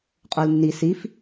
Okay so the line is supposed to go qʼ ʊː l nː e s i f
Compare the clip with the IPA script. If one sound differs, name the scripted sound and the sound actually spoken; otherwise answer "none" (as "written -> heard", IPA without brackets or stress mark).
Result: e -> i